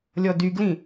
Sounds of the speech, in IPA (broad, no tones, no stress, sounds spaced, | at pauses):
lʲ ɔ d y ɡ l ĩ